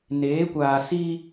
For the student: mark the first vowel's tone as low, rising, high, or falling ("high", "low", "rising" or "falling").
rising